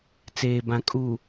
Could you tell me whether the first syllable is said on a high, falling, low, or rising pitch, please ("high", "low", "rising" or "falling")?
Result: low